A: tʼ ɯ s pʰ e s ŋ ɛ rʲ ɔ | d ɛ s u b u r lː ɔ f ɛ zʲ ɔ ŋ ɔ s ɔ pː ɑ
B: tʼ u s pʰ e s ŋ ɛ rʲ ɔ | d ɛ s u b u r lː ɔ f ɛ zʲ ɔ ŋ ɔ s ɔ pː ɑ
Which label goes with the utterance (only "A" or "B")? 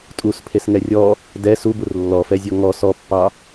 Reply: B